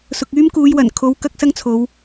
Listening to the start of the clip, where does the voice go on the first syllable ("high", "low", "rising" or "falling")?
low